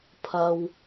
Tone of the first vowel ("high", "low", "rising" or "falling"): low